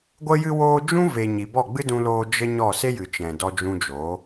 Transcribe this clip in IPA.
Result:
ɡʷ ə˧ j ɨ˧ w oː˧ d͡ʒ ũ˦ v e˨ ɲ i˨ b ɔ˦˨ ɡ͡b ɨ˦ d ũ˧ l oː˧ d͡ʒ ə˦ ɲ ɔ˦˨ s e˦ j ɨ˨ t͡ʃ ɛ̃˨ d ɔ˧ d͡ʒ ũ˧ d͡ʒ oː˨˦

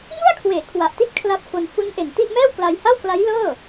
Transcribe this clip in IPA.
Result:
ŋ u˥˩ a̯ kʰ w eː˩˦ kʰ w a˨˩ ʔ t i˥˩ t̚ kʰ l a˦˥ p̚ f o˧ n f u˦˥ n ʔ e˨˩ n t i˥˩ ʔ m ɛː˥˩ w k l a˧ j h a˥˩ w k l a˦˥ j l ɤː˥˩

